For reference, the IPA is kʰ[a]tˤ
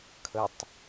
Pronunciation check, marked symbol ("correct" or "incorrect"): incorrect